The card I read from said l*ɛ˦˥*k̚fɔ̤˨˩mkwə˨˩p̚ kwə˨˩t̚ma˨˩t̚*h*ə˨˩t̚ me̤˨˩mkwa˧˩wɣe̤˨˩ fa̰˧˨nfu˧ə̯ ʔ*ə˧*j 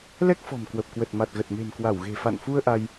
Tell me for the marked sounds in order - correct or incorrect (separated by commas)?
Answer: correct, incorrect, incorrect